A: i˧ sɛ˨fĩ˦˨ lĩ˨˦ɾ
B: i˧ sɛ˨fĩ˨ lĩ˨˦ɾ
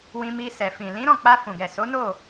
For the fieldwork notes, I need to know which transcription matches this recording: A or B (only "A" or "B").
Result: B